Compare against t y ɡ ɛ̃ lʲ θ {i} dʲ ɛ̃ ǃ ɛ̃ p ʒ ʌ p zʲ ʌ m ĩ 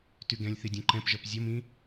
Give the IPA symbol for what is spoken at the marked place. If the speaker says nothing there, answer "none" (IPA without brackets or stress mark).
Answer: i